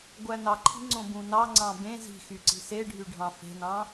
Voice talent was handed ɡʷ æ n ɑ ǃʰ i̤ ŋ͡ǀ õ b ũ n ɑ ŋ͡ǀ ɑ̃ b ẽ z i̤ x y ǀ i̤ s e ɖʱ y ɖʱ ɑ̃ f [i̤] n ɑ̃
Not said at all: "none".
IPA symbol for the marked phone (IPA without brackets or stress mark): e̤